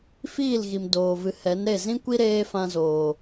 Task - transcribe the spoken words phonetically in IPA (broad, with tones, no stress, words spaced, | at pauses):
fiː˦˨lɣi˨m doː˨vɨ˨ hɛ˨˦n ɾe˦˨ zĩ˦kʷi˦ ɾeː˦fã˧zoː˨